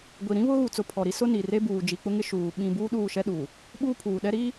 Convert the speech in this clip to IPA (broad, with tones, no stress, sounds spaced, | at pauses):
ɡʷ i˨ ɾ ĩ˦ β ʊ˦ ɣ u˨ t͡s ʊ˨ pʰ ɔ˨ ɾ i˦ s ʊ˦ n i˨ r e˦ b uː˨ d͡ʒ i˨ k͡p ʊ˦ ŋ ɪ˦ ʃ uː˨ ɓ ĩ˦ b uː˦ ɗ uː˦˨ ʃ ɛ˦ ɗ uː˨ | ɓ uː˦ pʰ uː˨ ɗ ɛ˦ ɾ iː˦